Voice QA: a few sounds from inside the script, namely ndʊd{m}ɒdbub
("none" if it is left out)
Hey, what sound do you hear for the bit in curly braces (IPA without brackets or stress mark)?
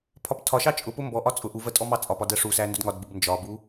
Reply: ŋ